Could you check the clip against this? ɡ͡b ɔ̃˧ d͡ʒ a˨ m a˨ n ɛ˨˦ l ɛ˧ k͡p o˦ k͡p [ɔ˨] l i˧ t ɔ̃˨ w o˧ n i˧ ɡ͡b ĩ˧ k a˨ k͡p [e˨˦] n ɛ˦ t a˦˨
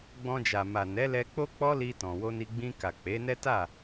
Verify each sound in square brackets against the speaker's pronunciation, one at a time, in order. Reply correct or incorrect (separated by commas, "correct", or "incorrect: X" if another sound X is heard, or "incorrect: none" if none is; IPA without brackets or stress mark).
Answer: incorrect: ɔ˦, correct